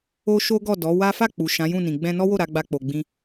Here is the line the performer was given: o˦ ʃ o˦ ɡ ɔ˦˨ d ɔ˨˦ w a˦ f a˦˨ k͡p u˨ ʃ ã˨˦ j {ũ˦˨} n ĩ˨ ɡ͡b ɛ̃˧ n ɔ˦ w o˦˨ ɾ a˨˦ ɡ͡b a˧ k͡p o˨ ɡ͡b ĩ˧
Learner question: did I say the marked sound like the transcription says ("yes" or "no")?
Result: yes